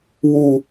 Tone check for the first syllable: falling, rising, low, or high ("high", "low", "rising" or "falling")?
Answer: low